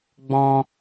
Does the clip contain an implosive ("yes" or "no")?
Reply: no